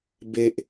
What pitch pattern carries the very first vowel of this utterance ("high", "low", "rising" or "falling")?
low